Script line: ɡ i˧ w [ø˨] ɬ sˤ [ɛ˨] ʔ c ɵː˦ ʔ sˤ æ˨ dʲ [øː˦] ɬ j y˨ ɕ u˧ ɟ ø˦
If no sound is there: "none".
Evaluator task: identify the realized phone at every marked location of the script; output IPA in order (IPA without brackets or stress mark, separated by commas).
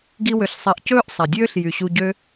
ø˨, ɛ˨, øː˦